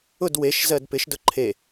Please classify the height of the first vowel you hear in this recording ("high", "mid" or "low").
high